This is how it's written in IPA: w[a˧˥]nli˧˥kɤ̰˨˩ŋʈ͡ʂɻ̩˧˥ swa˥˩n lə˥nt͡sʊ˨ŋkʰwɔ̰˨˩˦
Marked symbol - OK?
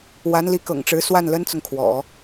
yes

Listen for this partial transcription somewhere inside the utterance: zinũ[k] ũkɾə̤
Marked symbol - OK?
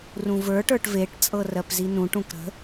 no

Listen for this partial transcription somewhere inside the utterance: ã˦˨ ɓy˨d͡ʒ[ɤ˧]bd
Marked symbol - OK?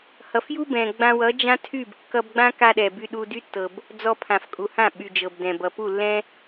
no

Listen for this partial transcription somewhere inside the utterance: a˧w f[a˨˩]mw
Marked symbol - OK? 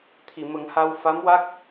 no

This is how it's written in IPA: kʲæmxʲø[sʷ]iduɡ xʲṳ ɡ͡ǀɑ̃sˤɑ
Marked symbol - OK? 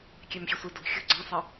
yes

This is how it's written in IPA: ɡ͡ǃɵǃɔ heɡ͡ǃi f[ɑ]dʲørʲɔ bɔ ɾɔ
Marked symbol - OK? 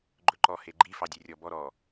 yes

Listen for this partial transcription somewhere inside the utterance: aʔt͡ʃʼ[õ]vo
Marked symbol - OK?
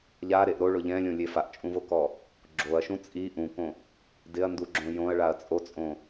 no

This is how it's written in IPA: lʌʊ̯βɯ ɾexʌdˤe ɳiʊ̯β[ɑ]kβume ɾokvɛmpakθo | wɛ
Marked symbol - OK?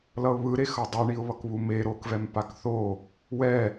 no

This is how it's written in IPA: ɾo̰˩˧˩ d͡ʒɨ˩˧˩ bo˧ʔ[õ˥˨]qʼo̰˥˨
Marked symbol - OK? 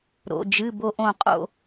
no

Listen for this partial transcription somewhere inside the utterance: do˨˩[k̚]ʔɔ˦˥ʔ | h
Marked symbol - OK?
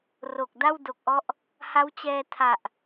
yes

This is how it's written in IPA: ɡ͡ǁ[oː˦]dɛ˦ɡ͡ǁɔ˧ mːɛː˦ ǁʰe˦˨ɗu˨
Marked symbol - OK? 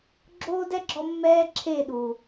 yes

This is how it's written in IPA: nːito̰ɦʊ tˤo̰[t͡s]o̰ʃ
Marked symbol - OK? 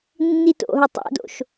no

